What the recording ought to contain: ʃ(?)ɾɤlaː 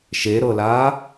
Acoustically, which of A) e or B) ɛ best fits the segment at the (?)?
A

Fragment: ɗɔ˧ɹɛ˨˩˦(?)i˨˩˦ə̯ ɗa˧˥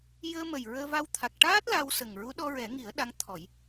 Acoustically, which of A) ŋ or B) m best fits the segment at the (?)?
A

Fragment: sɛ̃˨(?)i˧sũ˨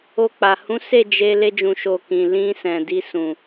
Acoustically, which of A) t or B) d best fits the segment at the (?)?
B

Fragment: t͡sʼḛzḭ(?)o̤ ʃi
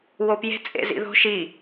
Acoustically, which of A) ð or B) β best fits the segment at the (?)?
A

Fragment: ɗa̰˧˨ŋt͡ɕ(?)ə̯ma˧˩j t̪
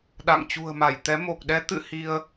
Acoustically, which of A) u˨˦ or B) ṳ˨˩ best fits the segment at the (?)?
B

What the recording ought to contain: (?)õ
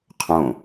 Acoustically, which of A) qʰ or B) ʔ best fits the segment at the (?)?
A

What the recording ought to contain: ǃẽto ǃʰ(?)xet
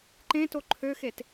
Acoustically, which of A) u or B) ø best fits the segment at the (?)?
B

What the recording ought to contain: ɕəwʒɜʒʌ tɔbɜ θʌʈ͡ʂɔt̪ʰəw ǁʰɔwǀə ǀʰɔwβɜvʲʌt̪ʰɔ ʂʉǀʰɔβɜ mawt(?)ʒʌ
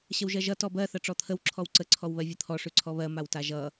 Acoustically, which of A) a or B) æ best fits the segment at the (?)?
A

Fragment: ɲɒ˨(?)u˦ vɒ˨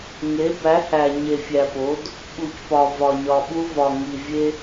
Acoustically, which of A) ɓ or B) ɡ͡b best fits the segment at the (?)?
A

